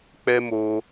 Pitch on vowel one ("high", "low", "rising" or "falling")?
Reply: high